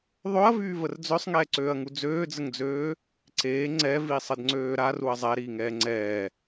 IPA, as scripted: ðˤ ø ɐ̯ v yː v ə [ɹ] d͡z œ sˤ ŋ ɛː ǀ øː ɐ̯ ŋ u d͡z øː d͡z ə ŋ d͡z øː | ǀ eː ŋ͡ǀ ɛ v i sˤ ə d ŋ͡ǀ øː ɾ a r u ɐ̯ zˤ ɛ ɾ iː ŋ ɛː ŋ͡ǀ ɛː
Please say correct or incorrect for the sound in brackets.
incorrect